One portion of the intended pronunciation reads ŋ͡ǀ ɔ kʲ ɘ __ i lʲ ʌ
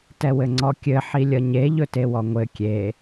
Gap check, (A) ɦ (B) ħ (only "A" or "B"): B